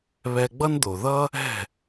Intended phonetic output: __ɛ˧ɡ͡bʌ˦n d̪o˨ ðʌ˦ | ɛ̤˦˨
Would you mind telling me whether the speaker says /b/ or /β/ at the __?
β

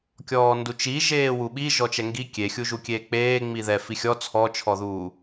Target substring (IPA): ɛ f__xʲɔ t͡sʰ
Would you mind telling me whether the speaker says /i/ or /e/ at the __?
i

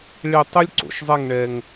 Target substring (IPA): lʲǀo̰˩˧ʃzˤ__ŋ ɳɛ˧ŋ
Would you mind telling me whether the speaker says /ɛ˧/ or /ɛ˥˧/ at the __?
ɛ˥˧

